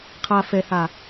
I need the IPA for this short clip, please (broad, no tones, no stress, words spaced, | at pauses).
qʰa fɛha